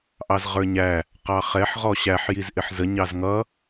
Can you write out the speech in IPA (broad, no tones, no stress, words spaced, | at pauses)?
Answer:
ʔɑzʁə˞ɲæ | qɑχɛħ ʁɔɕæħ jizʔɪħzə ɲɑzŋʌ